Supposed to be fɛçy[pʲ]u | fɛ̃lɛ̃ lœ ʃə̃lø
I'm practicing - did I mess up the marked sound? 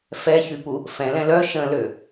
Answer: yes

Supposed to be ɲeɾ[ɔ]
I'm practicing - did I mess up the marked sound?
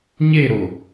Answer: yes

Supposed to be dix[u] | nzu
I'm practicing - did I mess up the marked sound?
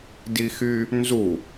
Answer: yes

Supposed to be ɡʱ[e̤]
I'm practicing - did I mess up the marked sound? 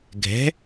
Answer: yes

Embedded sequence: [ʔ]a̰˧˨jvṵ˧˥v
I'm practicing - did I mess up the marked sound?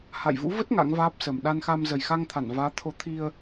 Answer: yes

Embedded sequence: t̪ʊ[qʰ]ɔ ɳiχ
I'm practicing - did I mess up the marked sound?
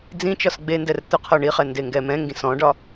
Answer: no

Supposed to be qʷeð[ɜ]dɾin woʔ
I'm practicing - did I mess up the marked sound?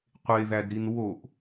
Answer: yes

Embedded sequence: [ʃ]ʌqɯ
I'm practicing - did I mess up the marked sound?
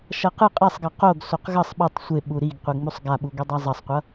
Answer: no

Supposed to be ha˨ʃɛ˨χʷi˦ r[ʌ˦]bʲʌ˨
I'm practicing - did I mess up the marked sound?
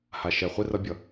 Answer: no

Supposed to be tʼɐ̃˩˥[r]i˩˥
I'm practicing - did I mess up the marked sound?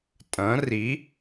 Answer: no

